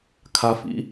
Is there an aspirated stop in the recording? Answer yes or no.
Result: yes